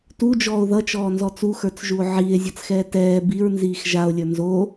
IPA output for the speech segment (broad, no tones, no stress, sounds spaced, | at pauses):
t u d͡ʒ ɔː o̯ ð ʌ t͡ʃ ɔː n z ɔ t͡s u x ə˞ t͡s ʒ u o̯ ʕ iː e̯ zʲ ʌ t͡s x ɛː t ɛː b i ɹ n z iː x ʒ a o̯ lʲ ə˞ n z o